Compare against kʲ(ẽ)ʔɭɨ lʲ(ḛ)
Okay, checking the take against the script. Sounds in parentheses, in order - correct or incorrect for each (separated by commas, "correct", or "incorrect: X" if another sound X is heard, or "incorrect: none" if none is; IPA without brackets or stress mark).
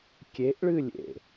incorrect: e, correct